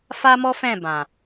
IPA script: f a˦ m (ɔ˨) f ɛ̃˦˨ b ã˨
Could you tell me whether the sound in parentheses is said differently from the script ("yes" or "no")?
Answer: yes